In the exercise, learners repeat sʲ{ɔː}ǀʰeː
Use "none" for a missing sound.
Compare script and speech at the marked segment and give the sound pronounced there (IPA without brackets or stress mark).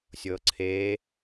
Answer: ɤː